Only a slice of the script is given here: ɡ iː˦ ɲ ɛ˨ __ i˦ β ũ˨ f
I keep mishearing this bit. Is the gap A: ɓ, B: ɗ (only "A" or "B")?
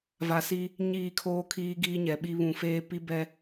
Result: A